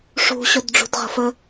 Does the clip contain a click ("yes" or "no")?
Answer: no